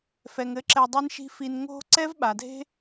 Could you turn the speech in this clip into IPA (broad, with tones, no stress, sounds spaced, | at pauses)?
f ɛ˨ ŋ ɘ˨˦ ǁ ɛ˧ dˤ e˦ n ʃ i̤˦ f i˧ n ŋ o̤˦ ǀ ɛ˦ v ɓ a˨ dʱ e̤˦